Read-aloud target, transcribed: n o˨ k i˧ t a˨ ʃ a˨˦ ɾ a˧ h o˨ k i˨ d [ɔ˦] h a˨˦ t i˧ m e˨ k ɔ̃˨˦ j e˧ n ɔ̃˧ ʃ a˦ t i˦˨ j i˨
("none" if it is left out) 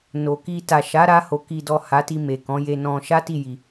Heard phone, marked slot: ɔ˨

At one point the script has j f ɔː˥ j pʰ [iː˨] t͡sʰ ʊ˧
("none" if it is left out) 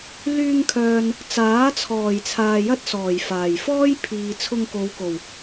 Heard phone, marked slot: iː˨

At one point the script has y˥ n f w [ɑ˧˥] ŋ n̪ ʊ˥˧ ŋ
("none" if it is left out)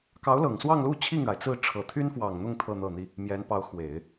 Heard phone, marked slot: ɑ˨˩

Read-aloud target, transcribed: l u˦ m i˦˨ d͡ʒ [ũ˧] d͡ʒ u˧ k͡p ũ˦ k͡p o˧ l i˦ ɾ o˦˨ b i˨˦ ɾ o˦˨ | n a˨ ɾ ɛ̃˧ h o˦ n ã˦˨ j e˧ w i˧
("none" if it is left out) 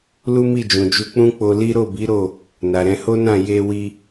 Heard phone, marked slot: ũ˨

